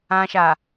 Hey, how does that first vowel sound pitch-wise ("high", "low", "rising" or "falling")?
low